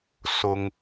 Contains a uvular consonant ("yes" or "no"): no